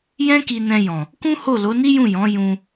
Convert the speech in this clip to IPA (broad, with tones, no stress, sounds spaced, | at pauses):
j ɛ̃˦ k i˧ n ɛ̃˧ j ɔ̃˨ | k ũ˦ h o˦˨ l o˨˦ n i˦ j ũ˦˨ j ɔ̃˨˦ j ũ˧